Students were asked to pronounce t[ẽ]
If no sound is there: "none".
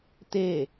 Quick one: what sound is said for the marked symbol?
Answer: e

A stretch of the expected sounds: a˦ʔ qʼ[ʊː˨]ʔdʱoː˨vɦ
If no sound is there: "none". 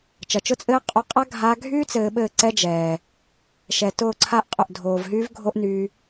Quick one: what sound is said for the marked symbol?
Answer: ʊ˨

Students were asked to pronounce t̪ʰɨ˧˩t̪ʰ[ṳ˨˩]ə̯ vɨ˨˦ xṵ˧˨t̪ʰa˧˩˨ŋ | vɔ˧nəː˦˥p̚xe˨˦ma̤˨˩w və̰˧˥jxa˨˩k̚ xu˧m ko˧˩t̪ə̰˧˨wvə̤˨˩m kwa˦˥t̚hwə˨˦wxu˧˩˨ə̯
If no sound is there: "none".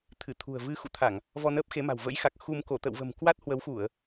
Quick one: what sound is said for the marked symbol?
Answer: ṳ˨˩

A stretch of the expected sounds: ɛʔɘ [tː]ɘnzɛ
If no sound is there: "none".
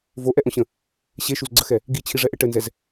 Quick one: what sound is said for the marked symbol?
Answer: ʈ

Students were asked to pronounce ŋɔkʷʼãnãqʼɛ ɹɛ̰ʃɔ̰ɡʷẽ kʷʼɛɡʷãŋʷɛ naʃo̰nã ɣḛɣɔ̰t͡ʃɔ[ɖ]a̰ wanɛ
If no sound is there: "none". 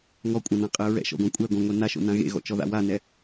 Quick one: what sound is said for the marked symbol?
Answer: ð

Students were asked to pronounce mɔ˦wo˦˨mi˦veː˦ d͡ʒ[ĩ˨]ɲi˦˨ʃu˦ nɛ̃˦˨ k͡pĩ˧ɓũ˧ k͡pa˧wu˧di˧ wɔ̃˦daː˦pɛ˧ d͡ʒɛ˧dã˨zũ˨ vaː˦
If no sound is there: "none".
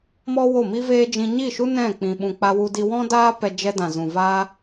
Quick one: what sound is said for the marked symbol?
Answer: ĩ˧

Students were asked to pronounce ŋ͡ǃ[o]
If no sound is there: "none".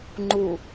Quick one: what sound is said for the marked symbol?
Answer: u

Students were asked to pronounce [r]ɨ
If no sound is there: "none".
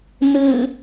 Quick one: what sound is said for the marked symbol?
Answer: n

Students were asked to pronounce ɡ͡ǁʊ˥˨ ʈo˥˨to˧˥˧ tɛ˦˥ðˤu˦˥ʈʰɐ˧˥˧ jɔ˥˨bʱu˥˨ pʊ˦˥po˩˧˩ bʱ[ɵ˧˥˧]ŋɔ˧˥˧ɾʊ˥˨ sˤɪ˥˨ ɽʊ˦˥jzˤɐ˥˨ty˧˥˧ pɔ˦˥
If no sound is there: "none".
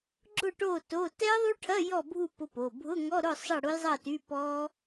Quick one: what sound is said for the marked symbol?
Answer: ʊ˧˥˧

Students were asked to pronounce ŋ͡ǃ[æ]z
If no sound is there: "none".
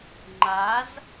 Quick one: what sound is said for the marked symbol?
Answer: a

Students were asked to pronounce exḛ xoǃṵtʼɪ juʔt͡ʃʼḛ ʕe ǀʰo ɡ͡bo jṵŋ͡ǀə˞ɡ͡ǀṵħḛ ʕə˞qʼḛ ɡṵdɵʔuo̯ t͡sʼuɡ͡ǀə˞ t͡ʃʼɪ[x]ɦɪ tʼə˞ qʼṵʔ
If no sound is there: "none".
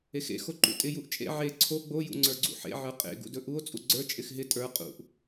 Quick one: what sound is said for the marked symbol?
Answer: x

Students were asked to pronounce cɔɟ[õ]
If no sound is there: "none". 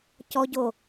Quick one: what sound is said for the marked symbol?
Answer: o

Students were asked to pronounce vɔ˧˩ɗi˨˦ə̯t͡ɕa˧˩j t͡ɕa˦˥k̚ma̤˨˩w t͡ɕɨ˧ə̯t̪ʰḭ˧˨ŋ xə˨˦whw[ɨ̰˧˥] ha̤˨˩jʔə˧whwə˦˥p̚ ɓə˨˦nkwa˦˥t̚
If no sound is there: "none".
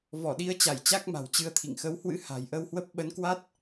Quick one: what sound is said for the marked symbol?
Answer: ɨ̰˧˥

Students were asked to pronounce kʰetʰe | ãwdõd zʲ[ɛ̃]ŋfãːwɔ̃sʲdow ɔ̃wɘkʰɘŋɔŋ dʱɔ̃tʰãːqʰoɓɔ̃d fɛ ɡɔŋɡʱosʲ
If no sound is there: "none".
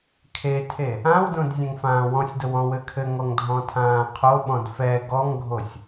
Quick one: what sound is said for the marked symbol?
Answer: ɛ̃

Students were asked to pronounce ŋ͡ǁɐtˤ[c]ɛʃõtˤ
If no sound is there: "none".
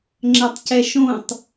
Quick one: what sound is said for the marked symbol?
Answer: c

